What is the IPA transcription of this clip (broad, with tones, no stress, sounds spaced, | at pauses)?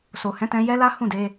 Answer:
s o˨ h ɛ̃˨˦ t ɛ̃˧ j ɛ˦ l a˦ h ũ˦˨ d e˧